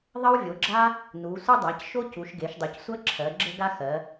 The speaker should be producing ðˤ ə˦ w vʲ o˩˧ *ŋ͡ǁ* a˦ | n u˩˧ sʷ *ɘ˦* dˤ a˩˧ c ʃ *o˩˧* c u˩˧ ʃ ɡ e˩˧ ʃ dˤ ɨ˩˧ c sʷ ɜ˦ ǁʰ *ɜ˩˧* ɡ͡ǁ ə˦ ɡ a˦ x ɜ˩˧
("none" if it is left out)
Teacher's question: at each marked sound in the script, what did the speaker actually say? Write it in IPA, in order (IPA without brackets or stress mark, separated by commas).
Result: ɡ͡ǁ, ɘ˦, o˦, ɜ˩˧